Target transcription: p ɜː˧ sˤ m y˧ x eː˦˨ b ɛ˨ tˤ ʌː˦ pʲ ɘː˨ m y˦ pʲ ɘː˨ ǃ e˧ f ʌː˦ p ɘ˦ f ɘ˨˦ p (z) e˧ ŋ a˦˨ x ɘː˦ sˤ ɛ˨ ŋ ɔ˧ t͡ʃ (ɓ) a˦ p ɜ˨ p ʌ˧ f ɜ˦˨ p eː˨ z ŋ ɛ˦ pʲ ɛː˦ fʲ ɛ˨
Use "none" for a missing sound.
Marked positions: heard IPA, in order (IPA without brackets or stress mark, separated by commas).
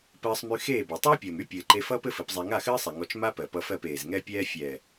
zˤ, m